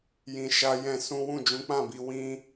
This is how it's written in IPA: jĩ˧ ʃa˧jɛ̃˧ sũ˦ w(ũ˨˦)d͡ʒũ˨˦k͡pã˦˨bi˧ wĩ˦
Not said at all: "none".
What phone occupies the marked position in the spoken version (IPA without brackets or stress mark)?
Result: ũ˦˨